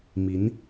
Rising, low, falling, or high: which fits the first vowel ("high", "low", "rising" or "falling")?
rising